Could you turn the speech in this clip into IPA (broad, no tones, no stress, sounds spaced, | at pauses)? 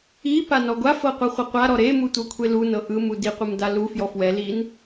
i p a n ɔ ɡʷ a f ɤ qʷ ɤ χʷ ɤ qʷ a ɾ ɔ ɾ e m u tʷ ɤ kʷʰ e l u n ɤ ʔ ɯ m u d i qʷ ɯ m d a l u f j ɔ f w ɛ l i n